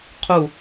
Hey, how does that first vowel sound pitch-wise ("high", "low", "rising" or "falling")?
falling